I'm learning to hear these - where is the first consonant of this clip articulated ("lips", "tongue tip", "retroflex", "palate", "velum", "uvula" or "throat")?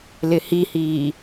tongue tip